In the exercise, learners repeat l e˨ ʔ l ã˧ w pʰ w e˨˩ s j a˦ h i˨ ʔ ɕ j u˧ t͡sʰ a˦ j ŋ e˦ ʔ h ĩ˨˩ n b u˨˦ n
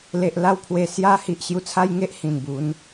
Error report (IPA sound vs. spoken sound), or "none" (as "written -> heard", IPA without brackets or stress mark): ã˧ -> a˧